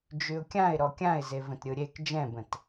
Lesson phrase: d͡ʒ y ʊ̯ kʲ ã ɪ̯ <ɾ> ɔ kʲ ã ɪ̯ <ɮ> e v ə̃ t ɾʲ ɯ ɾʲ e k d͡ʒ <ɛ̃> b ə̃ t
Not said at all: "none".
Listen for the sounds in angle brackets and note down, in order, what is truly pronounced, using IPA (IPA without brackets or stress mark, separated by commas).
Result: ɾ, z, ɛ̃